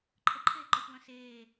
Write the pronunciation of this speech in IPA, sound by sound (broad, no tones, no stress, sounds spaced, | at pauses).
ǃʰ ə ǃʰ eː ǃ ɔ xʷ w œ̃ s eː